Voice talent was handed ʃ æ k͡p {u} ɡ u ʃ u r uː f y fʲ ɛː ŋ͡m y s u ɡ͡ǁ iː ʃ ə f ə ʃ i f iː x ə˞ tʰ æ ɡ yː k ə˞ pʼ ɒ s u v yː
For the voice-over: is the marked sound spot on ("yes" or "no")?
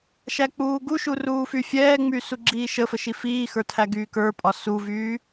no